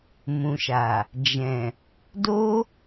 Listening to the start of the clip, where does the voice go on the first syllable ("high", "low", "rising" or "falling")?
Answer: low